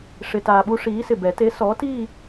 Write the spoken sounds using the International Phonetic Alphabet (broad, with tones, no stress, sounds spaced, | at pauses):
ʂ ɪ˧ t aː˧ ɓ u˦˥ ʂ iː˨˥ s ɪ˨˩ b ɛ˨˩˦ t e˨˥ s ɔ˨˥ t i˥˧